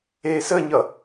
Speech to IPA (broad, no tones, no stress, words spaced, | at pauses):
eːsəːɲʌ